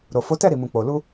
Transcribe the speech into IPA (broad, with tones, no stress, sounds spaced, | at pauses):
ɾ o˨ f o˨˦ t ɛ˦˨ ɾ i˨ m ũ˨ k͡p o˨ l u˧